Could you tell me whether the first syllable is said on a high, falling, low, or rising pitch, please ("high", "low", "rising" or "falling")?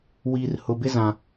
low